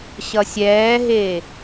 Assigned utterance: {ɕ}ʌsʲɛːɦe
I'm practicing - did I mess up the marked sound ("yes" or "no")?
no